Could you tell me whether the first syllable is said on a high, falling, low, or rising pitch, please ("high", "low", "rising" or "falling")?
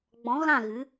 rising